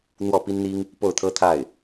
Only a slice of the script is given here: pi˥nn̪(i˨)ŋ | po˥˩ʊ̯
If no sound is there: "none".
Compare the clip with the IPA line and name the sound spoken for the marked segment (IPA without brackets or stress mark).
i˥